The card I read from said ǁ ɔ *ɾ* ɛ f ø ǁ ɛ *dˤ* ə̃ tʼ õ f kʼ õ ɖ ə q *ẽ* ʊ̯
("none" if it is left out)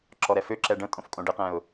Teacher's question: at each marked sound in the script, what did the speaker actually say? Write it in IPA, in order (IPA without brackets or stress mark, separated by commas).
ɾ, ɖ, ɛ̃